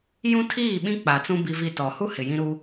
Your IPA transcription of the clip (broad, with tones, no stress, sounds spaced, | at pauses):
j ũ˦ tʰ iː˦˨ ɓ ĩ˦ k͡p a˨ t͡s ũ˦ b i˦ v i˦˨ t ɔ˨ h u˦ h ɪ˨ j ĩ˦ ɾ u˦